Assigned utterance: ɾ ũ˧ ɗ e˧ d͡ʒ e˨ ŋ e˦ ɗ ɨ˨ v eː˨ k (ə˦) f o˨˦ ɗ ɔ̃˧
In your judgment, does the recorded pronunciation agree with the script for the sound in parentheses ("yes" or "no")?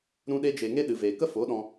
yes